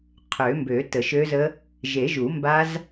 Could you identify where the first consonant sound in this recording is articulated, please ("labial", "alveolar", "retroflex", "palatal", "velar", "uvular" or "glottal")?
uvular